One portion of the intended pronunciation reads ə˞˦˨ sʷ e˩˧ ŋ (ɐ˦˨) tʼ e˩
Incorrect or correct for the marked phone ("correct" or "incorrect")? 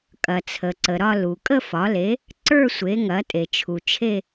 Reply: incorrect